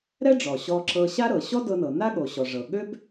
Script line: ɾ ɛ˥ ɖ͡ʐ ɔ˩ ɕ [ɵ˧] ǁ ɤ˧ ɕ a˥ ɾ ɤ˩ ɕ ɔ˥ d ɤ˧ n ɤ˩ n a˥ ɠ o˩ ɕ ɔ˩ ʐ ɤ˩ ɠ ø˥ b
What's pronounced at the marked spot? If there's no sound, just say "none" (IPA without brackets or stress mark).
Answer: ɔ˧